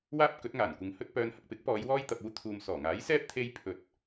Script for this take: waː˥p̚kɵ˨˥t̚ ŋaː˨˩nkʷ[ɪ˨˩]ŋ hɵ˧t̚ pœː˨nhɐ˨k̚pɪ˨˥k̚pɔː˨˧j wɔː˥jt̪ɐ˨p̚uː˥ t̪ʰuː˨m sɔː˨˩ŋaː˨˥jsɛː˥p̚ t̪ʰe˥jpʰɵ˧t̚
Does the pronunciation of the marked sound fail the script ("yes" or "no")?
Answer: yes